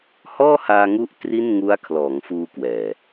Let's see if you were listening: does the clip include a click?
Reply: no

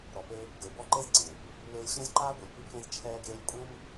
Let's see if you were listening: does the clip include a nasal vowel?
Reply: yes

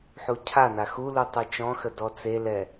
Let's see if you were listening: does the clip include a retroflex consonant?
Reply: no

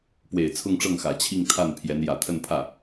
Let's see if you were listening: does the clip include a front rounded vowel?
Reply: no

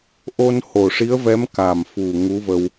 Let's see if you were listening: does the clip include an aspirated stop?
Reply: no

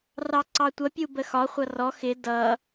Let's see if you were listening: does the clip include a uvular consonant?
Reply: yes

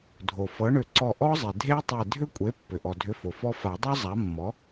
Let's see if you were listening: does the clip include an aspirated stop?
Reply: no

